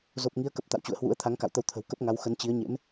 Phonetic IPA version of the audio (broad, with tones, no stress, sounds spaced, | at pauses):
z o˨˩ p̚ ŋ i˨˦ ə̯ k ə˨˩ p̚ t̪ a̰˧˨ w t͡ɕ ṵ˧˨ ə̯ h w ṵ˧˥ ə̯ t̪ʰ a˨˦ ŋ k a̰˧˨ w t̪ ə˧ w t̪ʰ ə̤˨˩ w k ə˦˥ p̚ ŋ a˨˦ w x ə˨˦ n t͡ɕ i˨˦ ə̯ ɲ ḛ˧˥ m